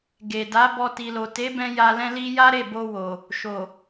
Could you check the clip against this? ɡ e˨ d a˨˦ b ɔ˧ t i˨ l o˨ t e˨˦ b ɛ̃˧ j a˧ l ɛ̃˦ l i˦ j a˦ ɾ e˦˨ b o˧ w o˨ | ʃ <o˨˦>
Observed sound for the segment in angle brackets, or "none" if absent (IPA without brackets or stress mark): o˨